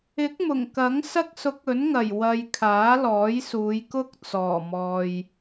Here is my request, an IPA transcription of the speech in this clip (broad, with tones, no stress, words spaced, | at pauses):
ɪ˨˥k̚mʊ˨˩ŋkɐ˨˥ŋ sɐ˧k̚sʊ˨˥k̚ ɵ˨˥nŋɐ˨˩j wɐ˨j kʰaː˨˥lɔː˨˥jsuː˨˧jkʊ˥k̚ t͡sɔː˨˩mɔː˨j